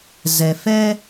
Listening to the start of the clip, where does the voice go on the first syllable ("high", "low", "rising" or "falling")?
low